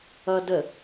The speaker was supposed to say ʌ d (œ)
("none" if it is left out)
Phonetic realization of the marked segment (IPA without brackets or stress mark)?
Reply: ə